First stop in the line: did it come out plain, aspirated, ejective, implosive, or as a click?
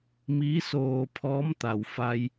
aspirated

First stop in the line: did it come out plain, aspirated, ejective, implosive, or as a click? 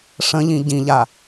plain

